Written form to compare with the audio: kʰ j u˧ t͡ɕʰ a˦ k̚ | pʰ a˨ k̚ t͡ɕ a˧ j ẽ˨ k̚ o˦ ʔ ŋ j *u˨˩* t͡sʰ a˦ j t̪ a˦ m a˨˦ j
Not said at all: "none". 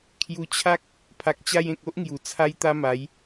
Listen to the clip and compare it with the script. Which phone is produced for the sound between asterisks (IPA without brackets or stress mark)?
u˨˩